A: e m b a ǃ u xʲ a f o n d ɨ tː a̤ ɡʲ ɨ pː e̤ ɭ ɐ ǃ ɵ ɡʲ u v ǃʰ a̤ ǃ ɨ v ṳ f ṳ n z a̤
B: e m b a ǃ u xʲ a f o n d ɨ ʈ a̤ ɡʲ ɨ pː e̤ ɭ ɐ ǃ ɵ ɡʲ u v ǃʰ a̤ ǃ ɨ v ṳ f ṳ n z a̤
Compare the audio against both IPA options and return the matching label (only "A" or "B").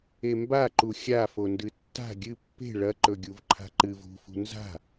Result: A